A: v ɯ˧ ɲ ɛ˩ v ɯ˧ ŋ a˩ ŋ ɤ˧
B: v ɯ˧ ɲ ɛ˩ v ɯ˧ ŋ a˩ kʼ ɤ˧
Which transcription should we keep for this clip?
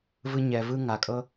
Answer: B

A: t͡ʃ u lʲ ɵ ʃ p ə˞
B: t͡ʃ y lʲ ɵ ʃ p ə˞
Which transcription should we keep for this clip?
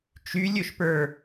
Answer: B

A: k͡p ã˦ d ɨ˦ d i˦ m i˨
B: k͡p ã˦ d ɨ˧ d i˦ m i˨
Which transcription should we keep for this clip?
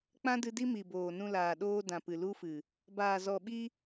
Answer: B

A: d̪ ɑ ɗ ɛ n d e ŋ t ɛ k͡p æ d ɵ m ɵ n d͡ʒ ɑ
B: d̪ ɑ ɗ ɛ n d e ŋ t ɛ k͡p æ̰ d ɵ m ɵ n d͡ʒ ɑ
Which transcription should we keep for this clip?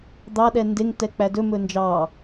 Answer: A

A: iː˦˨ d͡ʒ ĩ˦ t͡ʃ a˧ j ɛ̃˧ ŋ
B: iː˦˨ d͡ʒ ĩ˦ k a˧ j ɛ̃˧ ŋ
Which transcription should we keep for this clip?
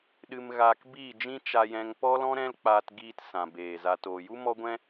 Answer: A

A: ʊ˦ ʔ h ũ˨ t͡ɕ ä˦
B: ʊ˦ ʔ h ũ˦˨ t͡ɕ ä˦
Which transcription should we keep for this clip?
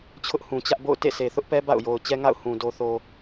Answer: A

